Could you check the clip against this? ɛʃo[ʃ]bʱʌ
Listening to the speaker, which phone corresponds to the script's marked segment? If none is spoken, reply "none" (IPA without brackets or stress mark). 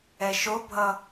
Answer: none